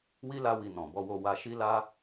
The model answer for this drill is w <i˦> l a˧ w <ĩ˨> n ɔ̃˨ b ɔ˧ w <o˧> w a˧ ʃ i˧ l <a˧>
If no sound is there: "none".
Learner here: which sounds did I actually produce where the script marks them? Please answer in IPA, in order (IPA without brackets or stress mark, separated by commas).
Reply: i˦, i˨, o˧, a˧